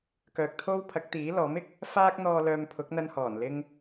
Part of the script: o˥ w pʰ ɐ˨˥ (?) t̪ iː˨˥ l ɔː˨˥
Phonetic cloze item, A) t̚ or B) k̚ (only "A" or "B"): B